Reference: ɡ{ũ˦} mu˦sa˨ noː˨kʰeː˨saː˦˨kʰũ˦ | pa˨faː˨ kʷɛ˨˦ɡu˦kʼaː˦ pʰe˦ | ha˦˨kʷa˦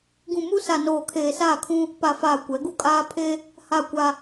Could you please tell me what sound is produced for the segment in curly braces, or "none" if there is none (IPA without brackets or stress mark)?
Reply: ũ˨